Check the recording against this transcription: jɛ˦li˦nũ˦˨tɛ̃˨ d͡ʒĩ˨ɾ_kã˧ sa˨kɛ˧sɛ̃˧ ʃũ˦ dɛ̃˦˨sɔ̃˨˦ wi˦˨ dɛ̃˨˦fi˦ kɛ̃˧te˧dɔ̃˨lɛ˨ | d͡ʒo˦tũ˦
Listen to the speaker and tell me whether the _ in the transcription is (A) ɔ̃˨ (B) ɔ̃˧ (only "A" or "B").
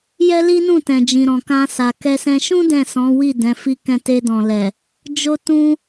A